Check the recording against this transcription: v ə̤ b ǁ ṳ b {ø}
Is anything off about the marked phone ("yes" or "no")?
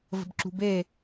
yes